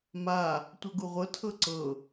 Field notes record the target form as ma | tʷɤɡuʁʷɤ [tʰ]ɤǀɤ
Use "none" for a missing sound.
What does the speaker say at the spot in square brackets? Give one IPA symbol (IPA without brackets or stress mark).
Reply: tʰ